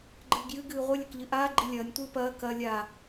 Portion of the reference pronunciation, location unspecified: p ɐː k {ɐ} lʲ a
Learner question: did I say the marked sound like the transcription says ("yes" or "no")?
yes